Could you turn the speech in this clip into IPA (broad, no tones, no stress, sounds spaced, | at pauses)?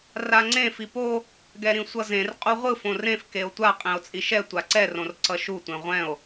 r a ŋ͡ǀ ẽ f i p o | ɡ ɛ ɾ ĩ sʷ ʌ z ẽ r qʼ u ʁʷ ɯ f õ r ẽ f k e o̯ tʷ a qʼ ẽ o̯ t͡sʼ i ʃ ɛ tʷ a ǀ ɛ r õ r ǀ ʌ ʃ u tʷ ẽ ʁʷ ɛ̃ o̯